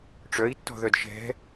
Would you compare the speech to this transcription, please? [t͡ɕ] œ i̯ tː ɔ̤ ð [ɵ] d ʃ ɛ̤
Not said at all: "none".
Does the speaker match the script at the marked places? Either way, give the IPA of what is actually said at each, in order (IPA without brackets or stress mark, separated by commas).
ʈ͡ʂ, œ